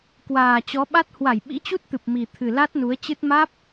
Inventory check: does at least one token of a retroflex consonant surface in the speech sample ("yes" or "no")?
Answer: no